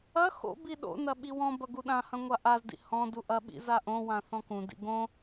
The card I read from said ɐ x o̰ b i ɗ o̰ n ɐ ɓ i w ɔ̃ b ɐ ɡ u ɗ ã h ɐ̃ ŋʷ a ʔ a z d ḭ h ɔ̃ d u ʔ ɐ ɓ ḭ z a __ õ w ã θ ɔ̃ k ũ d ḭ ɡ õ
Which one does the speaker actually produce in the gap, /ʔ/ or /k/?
ʔ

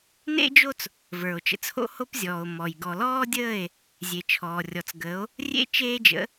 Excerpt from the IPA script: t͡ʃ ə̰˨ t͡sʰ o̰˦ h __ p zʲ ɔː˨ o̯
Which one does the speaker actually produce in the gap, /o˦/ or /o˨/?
o˦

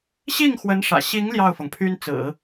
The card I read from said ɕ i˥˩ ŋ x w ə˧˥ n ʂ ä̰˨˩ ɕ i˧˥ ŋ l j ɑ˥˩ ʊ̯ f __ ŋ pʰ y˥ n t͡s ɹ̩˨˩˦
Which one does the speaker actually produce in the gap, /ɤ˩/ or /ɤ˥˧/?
ɤ˩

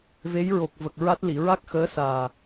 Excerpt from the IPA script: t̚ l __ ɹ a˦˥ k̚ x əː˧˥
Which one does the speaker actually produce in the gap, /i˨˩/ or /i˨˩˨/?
i˨˩˨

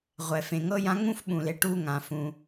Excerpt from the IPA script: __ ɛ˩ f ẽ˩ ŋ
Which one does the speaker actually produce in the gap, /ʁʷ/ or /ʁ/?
ʁʷ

